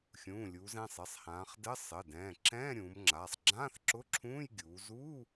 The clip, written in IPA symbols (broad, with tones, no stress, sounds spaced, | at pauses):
xʲ ũː˩˧˩ lʲ uː˩˧ z ɛ̃˩˧˩ sˤ ɘ˩˧˩ sˤ h ãː˩˧ χ d ɘ˧˥˧ sˤ ɘ˩˧˩ d ɛ̃ː˩˧˩ ǁ ɛ̃ː˧˥˧ ɾʲ ũː˩˧ m ŋ͡ǁ aː˩˧˩ sˤ ɡ͡ǁ ãː˧˥˧ θ ǁ ʊ˧˥˧ ǁʰ ũː˧˥˧ j ɡʲ uː˩˧ z uː˧˥˧